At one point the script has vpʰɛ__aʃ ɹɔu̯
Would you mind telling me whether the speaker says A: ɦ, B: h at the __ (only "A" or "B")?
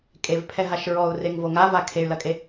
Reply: A